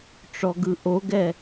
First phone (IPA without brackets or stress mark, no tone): ʈ͡ʂ